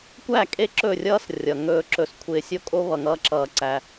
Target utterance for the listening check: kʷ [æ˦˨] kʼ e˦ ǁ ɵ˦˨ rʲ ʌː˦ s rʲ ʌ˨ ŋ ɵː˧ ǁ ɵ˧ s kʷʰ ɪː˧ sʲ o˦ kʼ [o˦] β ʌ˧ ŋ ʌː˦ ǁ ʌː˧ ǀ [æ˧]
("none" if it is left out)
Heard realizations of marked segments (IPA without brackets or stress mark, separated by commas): æ˦˨, o˦, æ˧